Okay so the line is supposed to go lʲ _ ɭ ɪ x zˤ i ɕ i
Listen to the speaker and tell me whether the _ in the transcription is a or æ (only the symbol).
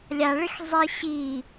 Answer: a